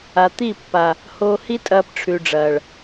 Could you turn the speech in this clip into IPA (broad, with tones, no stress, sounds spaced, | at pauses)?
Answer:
a˨ t̪ i˦˨ pː a˨ | h oː˧ h i˦ tʼ ɐː˧ p ʈ͡ʂʰ ʉ˨ ɖ͡ʐ ɐː˨ ɭ